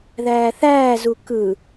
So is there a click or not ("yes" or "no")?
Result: no